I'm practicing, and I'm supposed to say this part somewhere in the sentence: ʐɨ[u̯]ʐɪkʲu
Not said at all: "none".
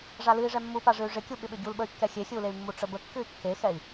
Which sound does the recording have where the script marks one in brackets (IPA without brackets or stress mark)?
y̯